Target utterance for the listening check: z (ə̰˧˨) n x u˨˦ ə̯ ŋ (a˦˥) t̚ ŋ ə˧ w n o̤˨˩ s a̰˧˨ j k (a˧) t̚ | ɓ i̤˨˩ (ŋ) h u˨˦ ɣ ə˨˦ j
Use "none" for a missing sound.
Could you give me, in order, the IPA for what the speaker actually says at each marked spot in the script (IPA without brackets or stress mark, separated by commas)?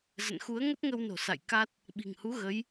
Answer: ə̰˧˨, ə˦˥, a˦˥, ŋ